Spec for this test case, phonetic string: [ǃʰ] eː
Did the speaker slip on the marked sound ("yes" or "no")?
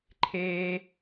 no